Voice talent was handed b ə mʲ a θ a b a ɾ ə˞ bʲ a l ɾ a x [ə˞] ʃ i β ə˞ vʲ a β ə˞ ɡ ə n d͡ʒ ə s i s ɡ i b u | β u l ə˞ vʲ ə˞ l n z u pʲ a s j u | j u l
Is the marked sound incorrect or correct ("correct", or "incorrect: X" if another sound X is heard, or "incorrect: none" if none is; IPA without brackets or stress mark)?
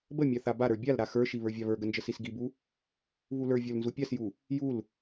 correct